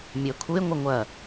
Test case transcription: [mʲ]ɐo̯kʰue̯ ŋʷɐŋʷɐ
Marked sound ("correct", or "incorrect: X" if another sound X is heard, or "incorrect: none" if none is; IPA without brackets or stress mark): correct